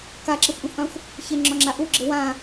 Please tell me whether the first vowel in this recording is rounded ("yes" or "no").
no